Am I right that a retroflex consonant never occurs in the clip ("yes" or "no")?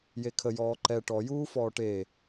no